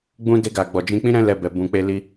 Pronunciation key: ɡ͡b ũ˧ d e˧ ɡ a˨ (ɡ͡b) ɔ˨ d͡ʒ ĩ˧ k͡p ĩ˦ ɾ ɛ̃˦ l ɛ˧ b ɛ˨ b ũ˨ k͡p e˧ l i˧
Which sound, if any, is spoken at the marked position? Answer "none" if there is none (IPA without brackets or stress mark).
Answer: ɡ͡b